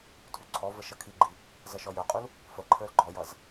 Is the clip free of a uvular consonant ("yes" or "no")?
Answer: no